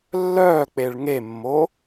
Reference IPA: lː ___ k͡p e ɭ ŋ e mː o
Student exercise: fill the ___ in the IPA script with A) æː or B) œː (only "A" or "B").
B